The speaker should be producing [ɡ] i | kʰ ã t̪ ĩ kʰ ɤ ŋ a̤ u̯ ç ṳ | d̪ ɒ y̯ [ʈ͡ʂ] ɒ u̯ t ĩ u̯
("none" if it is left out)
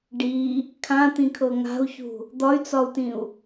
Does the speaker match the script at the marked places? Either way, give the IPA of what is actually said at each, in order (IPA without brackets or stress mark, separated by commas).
ɖ, t͡s